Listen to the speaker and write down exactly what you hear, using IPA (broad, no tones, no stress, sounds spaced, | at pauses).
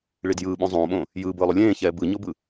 ɭ i d j ɯː ɓ õ zˤ õː ɓ õː | j ɯː b ɯː lˠ u lʲ ẽː ç ɛː b ɯ ɲ o b ɯ